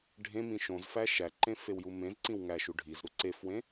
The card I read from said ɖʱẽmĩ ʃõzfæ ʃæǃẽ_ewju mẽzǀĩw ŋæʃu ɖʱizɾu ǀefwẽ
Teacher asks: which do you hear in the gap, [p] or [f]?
f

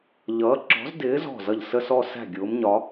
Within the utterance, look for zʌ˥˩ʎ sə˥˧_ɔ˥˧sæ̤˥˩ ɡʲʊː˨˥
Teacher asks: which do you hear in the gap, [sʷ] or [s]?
s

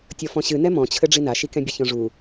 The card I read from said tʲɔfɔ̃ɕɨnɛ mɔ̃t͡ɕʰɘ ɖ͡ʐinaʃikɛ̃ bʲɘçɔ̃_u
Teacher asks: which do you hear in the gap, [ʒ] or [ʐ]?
ʐ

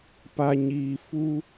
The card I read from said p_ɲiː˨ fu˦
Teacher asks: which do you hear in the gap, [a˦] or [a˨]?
a˨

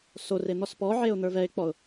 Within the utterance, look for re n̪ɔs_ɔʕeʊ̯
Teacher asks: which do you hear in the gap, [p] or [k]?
p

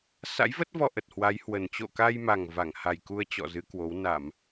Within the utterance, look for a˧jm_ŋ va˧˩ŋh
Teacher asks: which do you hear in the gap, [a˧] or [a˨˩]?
a˨˩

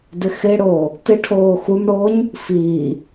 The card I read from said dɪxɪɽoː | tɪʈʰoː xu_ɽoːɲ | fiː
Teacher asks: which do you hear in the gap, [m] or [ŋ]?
m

